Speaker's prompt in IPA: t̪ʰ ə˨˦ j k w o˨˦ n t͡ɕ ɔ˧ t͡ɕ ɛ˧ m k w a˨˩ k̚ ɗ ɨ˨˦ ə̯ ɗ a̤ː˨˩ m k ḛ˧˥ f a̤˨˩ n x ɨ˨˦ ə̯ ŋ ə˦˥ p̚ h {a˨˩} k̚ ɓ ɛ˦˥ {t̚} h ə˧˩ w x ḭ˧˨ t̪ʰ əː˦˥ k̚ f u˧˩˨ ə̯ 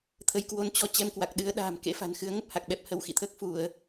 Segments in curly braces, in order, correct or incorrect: correct, incorrect: p̚

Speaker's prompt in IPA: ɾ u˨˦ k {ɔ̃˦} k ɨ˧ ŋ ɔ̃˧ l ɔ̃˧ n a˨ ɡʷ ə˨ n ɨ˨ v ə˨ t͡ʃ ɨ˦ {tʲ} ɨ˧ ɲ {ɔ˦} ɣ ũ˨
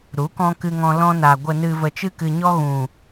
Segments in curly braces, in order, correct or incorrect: incorrect: ɔ̃˧, incorrect: k, correct

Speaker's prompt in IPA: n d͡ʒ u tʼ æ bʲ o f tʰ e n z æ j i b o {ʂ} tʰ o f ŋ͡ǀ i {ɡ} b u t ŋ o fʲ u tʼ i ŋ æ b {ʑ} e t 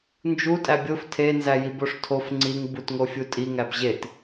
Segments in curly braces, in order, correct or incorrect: correct, incorrect: ŋ, correct

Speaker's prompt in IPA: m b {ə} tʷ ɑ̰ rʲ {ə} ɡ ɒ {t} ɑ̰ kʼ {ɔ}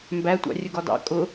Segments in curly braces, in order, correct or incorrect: incorrect: æ, correct, incorrect: d, incorrect: ʊ

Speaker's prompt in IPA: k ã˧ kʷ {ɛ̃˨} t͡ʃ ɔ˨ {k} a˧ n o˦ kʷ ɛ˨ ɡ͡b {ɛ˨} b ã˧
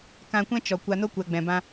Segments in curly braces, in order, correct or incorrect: incorrect: ɛ̃˦, incorrect: kʷ, incorrect: ɛ̃˨

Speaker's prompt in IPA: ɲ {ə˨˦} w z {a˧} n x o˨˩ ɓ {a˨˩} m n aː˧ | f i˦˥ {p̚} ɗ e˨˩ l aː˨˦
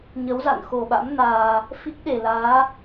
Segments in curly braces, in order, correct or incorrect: correct, incorrect: a̰˧˨, incorrect: a̰˧˥, incorrect: k̚

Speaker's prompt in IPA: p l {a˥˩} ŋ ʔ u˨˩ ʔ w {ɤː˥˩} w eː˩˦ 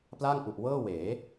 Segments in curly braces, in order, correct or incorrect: correct, correct

